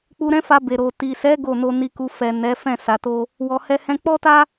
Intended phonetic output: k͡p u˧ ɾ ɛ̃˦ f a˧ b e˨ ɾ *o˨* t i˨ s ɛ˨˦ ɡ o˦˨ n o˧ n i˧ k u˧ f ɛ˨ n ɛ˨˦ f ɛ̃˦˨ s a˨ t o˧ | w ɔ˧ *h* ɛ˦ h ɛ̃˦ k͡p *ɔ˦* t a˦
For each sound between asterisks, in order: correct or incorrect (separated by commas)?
correct, correct, correct